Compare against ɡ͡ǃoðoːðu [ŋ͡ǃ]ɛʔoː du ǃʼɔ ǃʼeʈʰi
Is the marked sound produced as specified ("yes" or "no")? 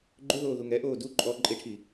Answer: no